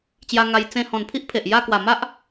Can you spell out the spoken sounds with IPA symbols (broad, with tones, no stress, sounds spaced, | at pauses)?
t͡ɕ j a˧ ŋ a˧ j t͡s ẽ˧ h ɔ̃˨˩ n pʰ i˦ ʔ pʰ e˨ ʔ j a˥˧ k w a˨˩ m a˦ ʔ